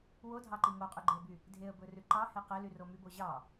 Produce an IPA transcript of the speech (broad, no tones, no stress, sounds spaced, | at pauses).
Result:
w o dʱ ɑ ǃ i ŋ o qʼ ʉ ɡ͡ǃ e ə̯ b y | dʱ e ə̯ b ɵ r ʉ ǃ ɑ h e q e l y r o m y b o ʑ ɑ